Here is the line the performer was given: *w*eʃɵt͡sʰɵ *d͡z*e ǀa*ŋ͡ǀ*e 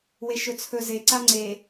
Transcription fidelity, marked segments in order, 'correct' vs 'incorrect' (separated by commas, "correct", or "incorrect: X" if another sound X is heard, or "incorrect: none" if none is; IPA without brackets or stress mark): correct, incorrect: z, correct